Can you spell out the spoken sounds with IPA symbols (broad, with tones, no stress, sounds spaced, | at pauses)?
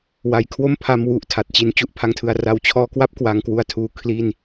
w a˨˩ j kʰ w o˥˩ m pʰ a˧ m w u˨˩ ʔ tʰ a˨˩ t̚ t͡ɕ i˧ n t͡ɕ u˥˩ ʔ pʰ a˧ ŋ tʰ ɯ˨˩ a̯ r a˧ w t͡ɕʰ ɔː˧ k w a˥˩ p̚ k w a˧ ŋ k w u˦˥ a̯ tʰ uː˧ kʰ l i˥˩ n